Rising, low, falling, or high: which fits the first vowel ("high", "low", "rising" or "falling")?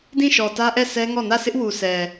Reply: falling